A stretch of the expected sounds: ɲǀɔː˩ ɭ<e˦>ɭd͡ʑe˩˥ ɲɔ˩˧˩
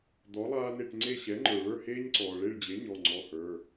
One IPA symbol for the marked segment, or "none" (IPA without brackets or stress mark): e˦˨